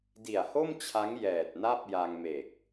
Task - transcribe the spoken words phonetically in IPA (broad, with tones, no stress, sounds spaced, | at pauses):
d i˨˩ a̯ h o˥˩ m t͡ɕʰ a˦˥ ŋ j ɛː˨˩ t̚ n a˥˩ p̚ j a˧ ŋ m e˨˩ k̚